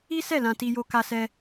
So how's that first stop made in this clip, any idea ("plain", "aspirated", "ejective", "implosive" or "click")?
plain